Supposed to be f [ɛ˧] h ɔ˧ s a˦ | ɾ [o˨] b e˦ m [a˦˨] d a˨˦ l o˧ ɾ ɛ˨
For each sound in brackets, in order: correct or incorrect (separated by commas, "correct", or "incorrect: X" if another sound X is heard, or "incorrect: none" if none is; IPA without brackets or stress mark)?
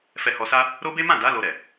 correct, incorrect: o˦, incorrect: ã˦˨